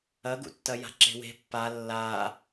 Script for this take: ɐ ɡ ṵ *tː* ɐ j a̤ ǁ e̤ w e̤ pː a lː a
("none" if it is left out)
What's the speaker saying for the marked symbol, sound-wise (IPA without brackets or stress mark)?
tː